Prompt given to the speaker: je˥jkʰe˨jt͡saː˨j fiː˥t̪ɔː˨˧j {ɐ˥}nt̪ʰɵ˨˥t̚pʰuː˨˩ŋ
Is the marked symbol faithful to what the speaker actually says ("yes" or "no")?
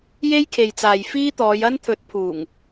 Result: yes